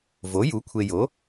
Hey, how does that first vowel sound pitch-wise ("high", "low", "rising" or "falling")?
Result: rising